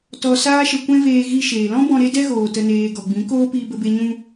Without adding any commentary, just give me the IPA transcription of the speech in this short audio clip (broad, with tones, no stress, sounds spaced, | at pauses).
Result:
t ɔ˧ s aː˦ ʃ ə˧ kʷ ɛ̃˦ v eː˧ ɣ i˧ ʃ eː˨ l ɔ̃˦ b ɔ̃˧ ɾ e˦ d ɛ˦ ɣ oː˨ t ə˨ n eː˨ ɡ ɔ˨ ɡ͡b ĩ˨˦ k oː˦ p iː˧ b ə˧ b e˧ ɲ ũ˧